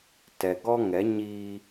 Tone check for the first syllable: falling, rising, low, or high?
low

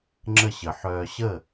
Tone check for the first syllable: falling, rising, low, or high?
falling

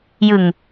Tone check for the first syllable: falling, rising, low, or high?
low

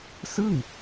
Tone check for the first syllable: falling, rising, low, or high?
falling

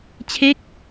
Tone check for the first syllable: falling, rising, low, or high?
falling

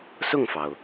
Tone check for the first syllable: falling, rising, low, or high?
falling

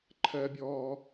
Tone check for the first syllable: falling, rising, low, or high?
high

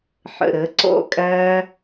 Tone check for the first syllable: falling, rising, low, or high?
low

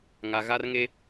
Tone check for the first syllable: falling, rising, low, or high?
low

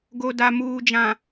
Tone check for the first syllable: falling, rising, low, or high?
low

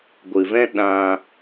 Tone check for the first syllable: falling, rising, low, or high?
low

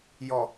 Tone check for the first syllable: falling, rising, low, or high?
low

